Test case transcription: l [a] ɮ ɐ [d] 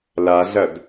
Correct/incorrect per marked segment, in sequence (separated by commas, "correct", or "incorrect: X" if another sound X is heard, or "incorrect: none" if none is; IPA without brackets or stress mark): correct, correct